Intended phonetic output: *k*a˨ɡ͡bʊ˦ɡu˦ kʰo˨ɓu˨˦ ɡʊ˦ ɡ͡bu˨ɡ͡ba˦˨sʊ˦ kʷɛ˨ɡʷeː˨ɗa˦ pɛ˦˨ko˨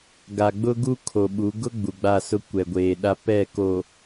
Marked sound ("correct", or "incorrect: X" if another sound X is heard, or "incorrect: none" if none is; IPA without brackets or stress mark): incorrect: ɡ